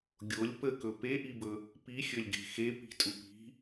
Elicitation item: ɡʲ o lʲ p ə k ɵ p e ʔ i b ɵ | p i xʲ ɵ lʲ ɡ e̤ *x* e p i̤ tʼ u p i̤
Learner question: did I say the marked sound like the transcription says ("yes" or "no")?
yes